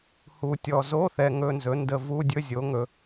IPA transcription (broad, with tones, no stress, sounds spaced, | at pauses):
h u˨ tʲ ɔ˨ z o˧˥˧ θ ɛ˨ ŋ ɵ˧˥˧ n z ɵ˩˥ n d ə˨ v u˧˥˧ dʲ ɵ˧˥˧ zʲ o˩˥ ŋ ɵ˨